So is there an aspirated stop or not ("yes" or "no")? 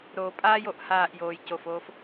no